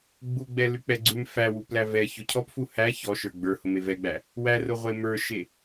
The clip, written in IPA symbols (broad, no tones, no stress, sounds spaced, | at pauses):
ɡ͡b u ɡ͡b ɛ l ʉ k͡p ɛ ɡ͡ǀ ʉ m f æ w u p l æ v ɛ ç ʊ cʰ ɔ p f u h æ ç ɔ ʃ ə˞ ɡ͡b ə˞ h ʊ m e v ɛ ɡ͡b æ | w æ r ʊ ʁʷ e m ə˞ ʃ e